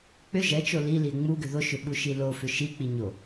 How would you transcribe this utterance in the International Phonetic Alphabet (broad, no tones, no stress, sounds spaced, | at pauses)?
k͡p ʏ ʒ ɛ t͡ʃ o l i l i e̯ ŋ͡m u ɡ ʏ ð o ʃ ʏ ɓ u ʃ i l o f ʏ ʃ i k͡p i ɲ o